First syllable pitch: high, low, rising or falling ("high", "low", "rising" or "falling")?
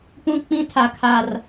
high